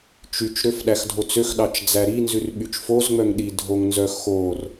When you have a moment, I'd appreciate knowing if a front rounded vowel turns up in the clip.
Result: yes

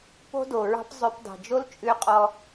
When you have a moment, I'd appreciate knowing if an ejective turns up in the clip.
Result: yes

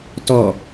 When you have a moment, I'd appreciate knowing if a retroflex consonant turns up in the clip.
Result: no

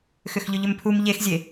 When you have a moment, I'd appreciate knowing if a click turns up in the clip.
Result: no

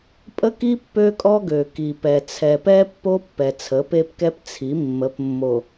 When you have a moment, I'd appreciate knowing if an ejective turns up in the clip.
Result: yes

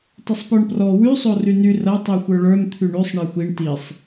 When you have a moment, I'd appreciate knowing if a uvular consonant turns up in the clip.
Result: no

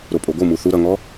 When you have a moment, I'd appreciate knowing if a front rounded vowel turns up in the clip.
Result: no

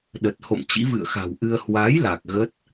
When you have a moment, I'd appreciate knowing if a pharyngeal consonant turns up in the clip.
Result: no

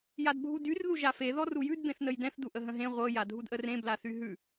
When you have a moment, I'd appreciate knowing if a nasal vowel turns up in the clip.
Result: yes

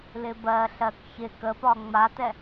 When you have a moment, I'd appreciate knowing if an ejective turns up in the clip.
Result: no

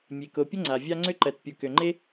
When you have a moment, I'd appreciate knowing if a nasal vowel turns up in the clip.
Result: no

